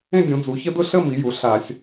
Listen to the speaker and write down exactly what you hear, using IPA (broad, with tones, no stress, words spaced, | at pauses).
ẽ˥˧ dʲũ˩˧d͡zu˩˧çə˥ dʊ˥˧ɬə˥˧mi˩˧ ju˩˧ɬa˧˩˧sʲ